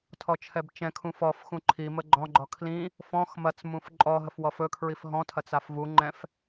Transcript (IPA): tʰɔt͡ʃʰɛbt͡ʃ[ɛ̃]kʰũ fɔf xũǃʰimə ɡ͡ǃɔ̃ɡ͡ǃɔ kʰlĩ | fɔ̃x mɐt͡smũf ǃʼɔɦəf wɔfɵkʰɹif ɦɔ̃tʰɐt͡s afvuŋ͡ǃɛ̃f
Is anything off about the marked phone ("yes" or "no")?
no